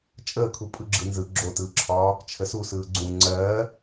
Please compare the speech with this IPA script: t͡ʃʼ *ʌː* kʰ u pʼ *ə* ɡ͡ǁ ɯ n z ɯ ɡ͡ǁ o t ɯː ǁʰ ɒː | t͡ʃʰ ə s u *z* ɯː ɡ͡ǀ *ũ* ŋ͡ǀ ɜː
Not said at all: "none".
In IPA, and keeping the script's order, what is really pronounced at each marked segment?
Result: əː, ɯ, s, ũ

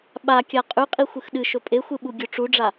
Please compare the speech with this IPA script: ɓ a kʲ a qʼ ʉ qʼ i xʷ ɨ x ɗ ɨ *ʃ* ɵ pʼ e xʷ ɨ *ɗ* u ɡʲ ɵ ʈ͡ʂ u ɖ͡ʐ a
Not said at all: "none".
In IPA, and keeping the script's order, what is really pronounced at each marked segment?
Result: ʃ, ɓ

